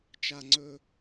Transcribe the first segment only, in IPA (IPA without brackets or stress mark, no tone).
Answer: t͡ʃ